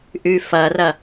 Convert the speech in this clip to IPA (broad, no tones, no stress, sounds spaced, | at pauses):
ʔ ʉ f ʌ r ʌ